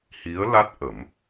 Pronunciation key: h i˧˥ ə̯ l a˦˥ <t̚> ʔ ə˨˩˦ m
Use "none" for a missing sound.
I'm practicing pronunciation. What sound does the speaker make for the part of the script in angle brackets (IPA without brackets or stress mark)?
t̚